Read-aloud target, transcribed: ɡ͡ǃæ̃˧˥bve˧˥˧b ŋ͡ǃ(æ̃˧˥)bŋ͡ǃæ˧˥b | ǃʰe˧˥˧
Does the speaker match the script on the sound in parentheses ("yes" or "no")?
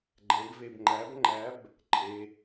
no